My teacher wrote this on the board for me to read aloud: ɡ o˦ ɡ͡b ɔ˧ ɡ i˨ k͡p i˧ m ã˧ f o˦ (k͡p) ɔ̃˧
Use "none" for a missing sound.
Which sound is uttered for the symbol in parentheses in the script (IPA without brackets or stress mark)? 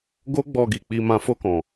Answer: k